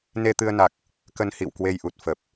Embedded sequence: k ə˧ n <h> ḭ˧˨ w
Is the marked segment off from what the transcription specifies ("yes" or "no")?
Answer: no